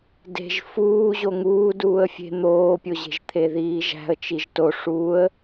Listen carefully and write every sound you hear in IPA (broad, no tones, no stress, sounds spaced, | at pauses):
d e̤ ʒ f uː ʑ o ŋ uː d uː ə̯ fʲ e̤ n̪ oː pʲ o ʑ e̤ ʒ t̪ʰ e ð iː ʒ æ̤ ə̯ t͡ʃ i ʒ t o ʂ uː ə̯